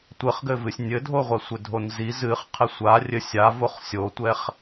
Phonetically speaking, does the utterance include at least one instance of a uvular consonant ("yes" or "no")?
yes